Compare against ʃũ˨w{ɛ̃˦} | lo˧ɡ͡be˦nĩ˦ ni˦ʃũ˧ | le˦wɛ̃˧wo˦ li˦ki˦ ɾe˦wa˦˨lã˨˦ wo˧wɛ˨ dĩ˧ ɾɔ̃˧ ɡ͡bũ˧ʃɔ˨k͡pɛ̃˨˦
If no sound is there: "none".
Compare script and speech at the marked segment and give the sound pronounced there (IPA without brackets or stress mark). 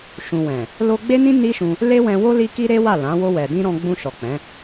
ɛ̃˨